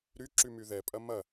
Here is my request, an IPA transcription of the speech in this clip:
ɾ y ǁ y m y ð ɛ pʼ ɐ m ɐ

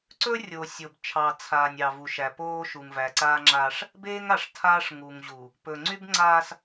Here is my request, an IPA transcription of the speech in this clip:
ǀ ɵ˦ rʲ o˨ sʲ oː˨ b t͡ʃʰ ɑ˨ t͡sʰ aː˨ nʲ ɑ˨ v u˨ ʃ æ˨ p oː˦ ʃ u˨ ŋ v æ˨ ǀ aː˦ ŋ͡ǁ aː˦ ʂ | b eː˦ ŋ a˨ ʂ tʰ aː˦ ʂ ŋ u˨ ŋ ʑ u˨ | p ɵ˨ ŋ͡ǀ y˦ b ŋ͡ǀ aː˦ s

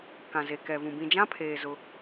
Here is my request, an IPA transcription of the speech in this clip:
k ã˨ z e˨ k ɛ˨ v ũ˨ b ĩ˨ d͡ʒ ã˦ pʰ eː˨ z ʊ˦

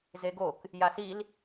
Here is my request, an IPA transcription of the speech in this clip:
z e ɡ o k | j a s i l

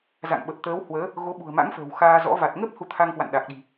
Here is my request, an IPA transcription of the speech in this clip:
z a̰˧˨ ŋ ɓ ə˨˩ p̚ t̪ əː˨˦ w h w əː˨˦ | ɣ o˨˦ ɓ ṳ˨˩ ə̯ m a̰˧˥ ŋ f ə̤ː˨˩ w x aː˧ z ɔ̰˧˥ v a˨˩ t̚ ŋ ə˦˥ p̚ h u˧ t̪ʰ a˧ ŋ k w a̰˧˨ n ɗ a˨˩ k̚ ɗ i̤˨˩

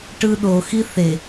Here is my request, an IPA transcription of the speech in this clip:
ʈ ɯ ɗ o x i θ e

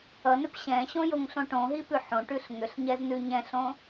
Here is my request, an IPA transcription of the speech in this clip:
ʌ n ʏ p ɕ ɛ̃ ɕ õ j o ŋ ɬ õ ʈ õ ɦ i p ʉ ħ õ ʈ ʉ ɬ ŋ ʏ ɬ ɲ ɛ z n ʉ ɲ ɛ̃ ɬ õ

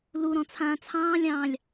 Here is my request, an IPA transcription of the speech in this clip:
l u ɾ ɔ̃ t͡sʰ ãː t͡sʰ ɑ̃ː lʲ ɑ̃ː lʲ

